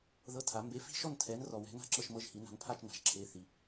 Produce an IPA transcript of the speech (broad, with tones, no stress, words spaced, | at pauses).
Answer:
ðɤ˧˥˧tʰa˨˦ mbe˨˦fi̤˥˨ʃɔ˥˨n tʰɛ˨˦nrɔ˨wɛ̤˨˦ na̤˥˨ǁɤ˥˨ʃmɤ˧˥˧ʒhi˨˦ na̤˨˦npʰa˥˨t͡ʃ na̤˨˦ʒ ǁʰe˧˥˧ θi˨